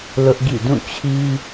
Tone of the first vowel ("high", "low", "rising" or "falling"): high